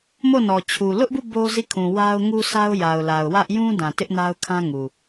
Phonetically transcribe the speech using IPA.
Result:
mo˦˨nɔ˨ t͡ɕʰu˨ lʊ˦ʔbu˦˨ bo˦zi˦˨kʰũ˨ wa˦ʊ̯ŋu˦sa˦ʊ̯ ja˨ʊ̯ la˨ʊ̯wä˦ʔ jũ˦dã˨ tɪ˦ʔna˦ʊ̯kʰã˦ŋu˨

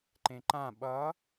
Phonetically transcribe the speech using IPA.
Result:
ǃẽǃã ɓʌ

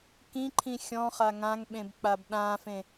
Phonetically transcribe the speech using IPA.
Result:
kĩǃʰĩ xʲɔ̃χa ŋãŋɓẽbk͡pab ɗãːfẽ

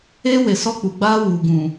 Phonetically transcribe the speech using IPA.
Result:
eː˦we˨ sɔ˦k͡pu˨ɡ͡baː˦ wuː˨ɡũ˨

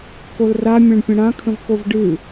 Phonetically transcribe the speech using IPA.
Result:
kolramʲãɳpʲə̃ ɽãkʰə̃v kovɖɨ

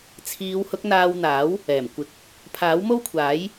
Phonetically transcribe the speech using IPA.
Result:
t͡sʰiː˨˧whʊ˨˥k̚n̪aː˧w n̪aː˨˥w | ɛː˨˩mkʷɪ˨˥k̚ | pʰaː˨˥wmo˥wkʷʰaː˨˥j

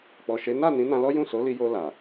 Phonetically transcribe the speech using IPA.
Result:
k͡pɔ˨ʃe˨˦ na˦˨ nĩ˨˦nã˧lɔ˦ jũ˦˨so˨˦li˧ jo˧la˨

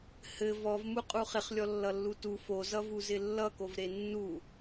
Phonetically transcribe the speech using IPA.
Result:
hɘ vɔvmuqʼu χɪχlʲɔlːʌlːu tu fozʌvuzɪ lːʌkovɾe nːu

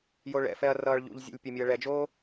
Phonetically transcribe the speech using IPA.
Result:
joɭɛ̰fɛɐ̯ rʌːɭʎṵʎzʲḛlʲ pʲʌmʲoɐ̯ɭɛd͡ʒoː

